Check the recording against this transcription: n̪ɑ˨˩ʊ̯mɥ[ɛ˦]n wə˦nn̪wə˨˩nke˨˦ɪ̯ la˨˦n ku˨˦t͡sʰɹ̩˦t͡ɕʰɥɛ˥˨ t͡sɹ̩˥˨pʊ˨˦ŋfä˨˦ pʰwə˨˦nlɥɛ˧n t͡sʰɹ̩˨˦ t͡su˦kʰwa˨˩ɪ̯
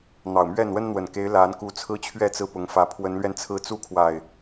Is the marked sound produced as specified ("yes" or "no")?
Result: no